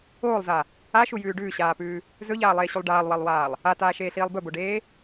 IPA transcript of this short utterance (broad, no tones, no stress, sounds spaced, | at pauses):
oː lˠ z a | a ʃ u j ʉː ɖ ʉː ɕ aː p ʉː | z ɵ ʎ aː lˠ eː ɕ u lˠ ɖ aː lˠ w ɐ lˠ w aː lˠ | a t aː ʃ eː ɬ iː lˠ b ɵ b o ɖ eː